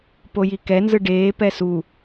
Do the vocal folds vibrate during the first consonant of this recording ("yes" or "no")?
no